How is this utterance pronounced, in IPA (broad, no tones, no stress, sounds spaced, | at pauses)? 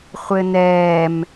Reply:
χʷ ɘ n ɛː m